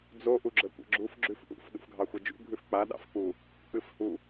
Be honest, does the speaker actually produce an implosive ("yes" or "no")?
yes